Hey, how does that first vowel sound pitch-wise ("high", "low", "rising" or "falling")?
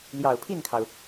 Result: low